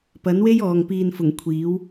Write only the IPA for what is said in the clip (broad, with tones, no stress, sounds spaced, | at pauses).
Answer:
p ɐ˨˥ n w e˥ j ɔː˨ ŋ p iː˨ n f ʊ˨˩ ŋ kʷʰ iː˨˥ w